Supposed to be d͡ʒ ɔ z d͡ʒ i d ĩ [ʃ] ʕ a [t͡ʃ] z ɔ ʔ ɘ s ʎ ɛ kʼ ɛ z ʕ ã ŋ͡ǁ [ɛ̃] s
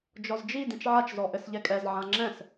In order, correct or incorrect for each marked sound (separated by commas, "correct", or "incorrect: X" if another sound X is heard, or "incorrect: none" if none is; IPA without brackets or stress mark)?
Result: incorrect: t͡ʃ, correct, correct